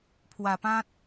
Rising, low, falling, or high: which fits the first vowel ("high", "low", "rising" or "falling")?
low